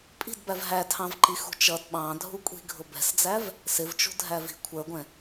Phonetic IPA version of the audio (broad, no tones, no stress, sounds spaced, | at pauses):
pʼ i̤ d b æ v ɦ æ tʰ ɑ̃ v ǃ i x ṳ t͡ʃ ʌ d ɓ ɑ̃ dʱ u kʷʼ i̤ ɡʱ ʊ b ɛ̤ s d͡z æ v | s ɪ v t͡ʃ ṳ dʱ æ v i̤ kʷʰ ə˞ ɡʷ ɛ̃